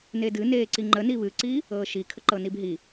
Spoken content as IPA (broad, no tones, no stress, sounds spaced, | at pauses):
n e d ɨ n eː ǀ i ŋ͡ǃ ə n i β ɨ ǀ i | ɤː ʃ i kʰ ə ǃ ɤ n i b ɦ i